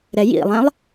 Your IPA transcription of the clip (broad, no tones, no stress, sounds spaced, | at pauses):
ɾ ɛ j ḭ lˠ ɛ̃ lˠ